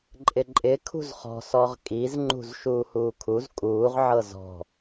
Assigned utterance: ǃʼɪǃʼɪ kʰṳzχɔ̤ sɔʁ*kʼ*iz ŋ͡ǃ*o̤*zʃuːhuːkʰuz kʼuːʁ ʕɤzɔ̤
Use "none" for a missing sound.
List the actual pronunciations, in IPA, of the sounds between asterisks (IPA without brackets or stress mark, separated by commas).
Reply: kʼ, ṳ